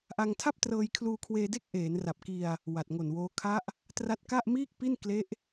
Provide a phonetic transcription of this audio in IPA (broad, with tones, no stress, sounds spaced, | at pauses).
ʔ a˧ ŋ tʰ a˥˩ p̚ t r ɤː˧ j kʰ l uː˧ kʰ w eː˧ d e˥˩ k̚ ʔ eː˩˦ n r a˨˩ p̚ k i˧ a̯ | w a˨˩ t̚ ŋ o˨˩ n w oː˦˥ kʰ a˦˥ ʔ | t r a˦˥ t̚ k a˥˩ ʔ m iː˥˩ k̚ p i˥˩ n k l e˦˥ ʔ